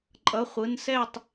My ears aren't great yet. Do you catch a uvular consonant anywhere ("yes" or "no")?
yes